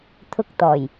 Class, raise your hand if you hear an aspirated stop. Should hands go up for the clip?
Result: yes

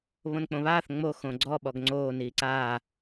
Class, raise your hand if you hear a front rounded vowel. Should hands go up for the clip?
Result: no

